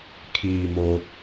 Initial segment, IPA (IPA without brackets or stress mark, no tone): kʰ